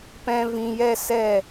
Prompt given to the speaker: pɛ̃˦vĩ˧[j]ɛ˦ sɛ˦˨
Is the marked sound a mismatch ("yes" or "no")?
no